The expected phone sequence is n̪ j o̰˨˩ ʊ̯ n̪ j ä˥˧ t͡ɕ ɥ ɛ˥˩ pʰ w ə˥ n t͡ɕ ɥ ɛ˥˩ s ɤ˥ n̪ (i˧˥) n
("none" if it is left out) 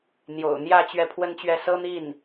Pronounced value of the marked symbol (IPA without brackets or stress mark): i˥˩